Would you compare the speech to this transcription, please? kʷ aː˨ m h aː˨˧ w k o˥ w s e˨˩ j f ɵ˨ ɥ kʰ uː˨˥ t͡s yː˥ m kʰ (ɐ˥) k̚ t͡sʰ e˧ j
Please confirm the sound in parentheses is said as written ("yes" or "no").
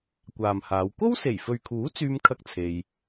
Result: yes